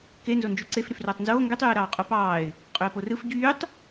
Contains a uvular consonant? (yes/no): yes